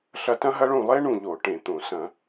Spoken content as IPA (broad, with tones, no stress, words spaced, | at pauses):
ɬɐ˦˨tɐ̃˥ɦɐ˥ɭũ˦˨ lˠe˥ɳũ˦˨ʎo˧˩˧ ʈẽ˧˩˧t̪õ˧˩˧ sɐ̃˧˩˧